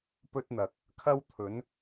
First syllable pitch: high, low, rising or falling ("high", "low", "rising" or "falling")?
high